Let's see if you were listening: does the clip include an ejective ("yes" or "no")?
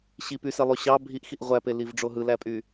yes